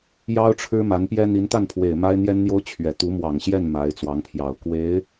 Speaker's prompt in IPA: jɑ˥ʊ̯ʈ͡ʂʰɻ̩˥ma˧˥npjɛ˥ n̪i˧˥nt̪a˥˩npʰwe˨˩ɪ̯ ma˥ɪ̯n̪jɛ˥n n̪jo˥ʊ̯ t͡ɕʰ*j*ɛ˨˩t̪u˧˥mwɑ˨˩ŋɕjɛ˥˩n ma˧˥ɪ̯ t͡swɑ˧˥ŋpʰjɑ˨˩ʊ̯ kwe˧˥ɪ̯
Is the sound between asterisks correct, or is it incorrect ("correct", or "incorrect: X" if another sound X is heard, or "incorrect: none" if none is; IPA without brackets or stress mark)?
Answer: incorrect: ɥ